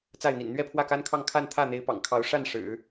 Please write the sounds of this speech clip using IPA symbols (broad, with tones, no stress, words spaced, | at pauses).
t͡sa˥˩ɪ̯n̪ḭ˨˩n n̪ɥɛ˥˧pʰwä˥˩ka˥nkʰɑ˥˧ŋ kʰa˥˧nt̪ʰä˥˩n̪e˧˥ɪ̯ pɑ̰˨˩ŋkʰɑ˧˥ʊ̯ ʂa˥˩n ʂɻ̩˨˩˦